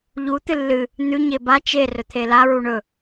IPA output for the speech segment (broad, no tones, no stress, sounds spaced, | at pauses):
ʎ u t̪ ɨ lː ɨ | n̪ ʉ ɲ e b a t͡ʃ e r ɵ t̪ʰ e l a ɹ u ɳ ɵ